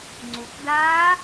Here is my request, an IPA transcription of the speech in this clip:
ŋ͡ǀukdaː

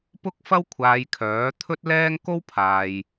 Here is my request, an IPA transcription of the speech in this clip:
pʊ˥k̚fɐ˥w kʷʰaː˧jkʰœː˨˥ t̪ʰɵ˥t̚lɛː˥ŋ ko˥wpʰaː˨j

